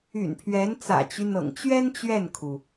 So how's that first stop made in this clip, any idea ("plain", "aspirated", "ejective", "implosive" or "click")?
aspirated